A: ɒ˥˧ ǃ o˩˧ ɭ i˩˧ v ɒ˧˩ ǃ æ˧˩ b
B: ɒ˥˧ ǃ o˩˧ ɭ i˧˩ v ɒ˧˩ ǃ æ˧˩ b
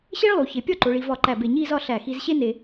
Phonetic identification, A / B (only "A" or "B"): A